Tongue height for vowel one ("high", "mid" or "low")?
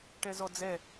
mid